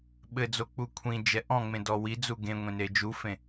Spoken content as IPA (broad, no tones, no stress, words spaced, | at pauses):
ɓɘd͡zo k͡pukʷʰĩd͡ʒɛ ʔɔ̃ŋ͡mẽ dɔwid͡zu ɡẽ ŋʷẽned͡ʒufẽ